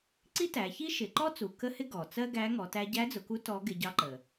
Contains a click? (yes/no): yes